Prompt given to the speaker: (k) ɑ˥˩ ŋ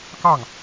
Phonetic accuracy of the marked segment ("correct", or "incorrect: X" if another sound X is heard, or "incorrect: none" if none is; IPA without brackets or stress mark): correct